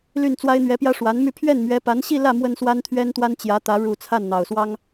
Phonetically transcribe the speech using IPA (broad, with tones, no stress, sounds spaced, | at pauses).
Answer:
l y˥˩ n t͡s w a˥ ɪ̯ n̪ ɥ ɛ˧˥ p j ä˥ ʂ w a˧˥ n m y˥˧ pʰ ɥ ɛ˥˩ n m ɥ ɛ˧˥ p a˧˥ n ɕ i˥˧ l ä˥˩ m w ə˥ n s w a˥ n t̪ʰ ɥ ɛ˥ n t̪ w a˥ n t͡ɕ j ä˧˥ t̪ ä˧˥ ɻ u˨˩ t͡sʰ a˥˩ n n̪ ɑ˨˩ ʊ̯ s w ɑ˥ ŋ